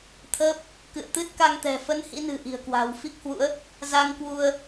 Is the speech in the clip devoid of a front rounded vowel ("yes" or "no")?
yes